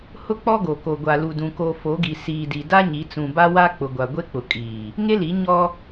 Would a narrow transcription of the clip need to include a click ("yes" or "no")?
no